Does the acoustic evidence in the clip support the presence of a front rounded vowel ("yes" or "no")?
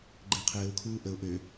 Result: yes